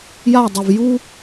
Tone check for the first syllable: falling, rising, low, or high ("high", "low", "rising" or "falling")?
falling